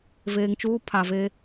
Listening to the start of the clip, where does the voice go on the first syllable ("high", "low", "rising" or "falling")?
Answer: low